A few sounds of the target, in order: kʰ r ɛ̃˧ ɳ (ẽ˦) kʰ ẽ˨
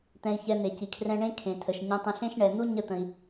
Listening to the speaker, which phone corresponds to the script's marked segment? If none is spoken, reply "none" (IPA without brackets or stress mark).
ẽ˦